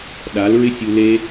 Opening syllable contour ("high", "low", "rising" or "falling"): rising